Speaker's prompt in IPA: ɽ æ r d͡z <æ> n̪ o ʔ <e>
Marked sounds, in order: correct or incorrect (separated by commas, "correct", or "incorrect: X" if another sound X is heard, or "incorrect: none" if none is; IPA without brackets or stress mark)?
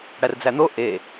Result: correct, correct